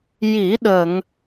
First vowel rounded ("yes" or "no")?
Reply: no